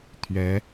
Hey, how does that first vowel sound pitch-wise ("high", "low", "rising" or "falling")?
rising